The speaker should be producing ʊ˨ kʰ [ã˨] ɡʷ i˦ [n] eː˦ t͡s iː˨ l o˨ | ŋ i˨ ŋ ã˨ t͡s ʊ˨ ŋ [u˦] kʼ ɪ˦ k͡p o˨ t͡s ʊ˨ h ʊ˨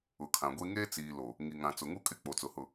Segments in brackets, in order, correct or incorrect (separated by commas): correct, incorrect, correct